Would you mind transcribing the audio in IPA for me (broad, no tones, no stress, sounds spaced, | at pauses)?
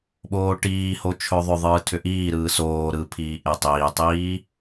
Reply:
ɓ oː ʈ iː h o t͡ʃʰ ɵ ðˤ ʏ ðˤ ɯː tʰ ʏ ʔ iː ɾ ɯː s oː ɾ ɯ pʰ iː ʔ e tˤ iː tˤ iː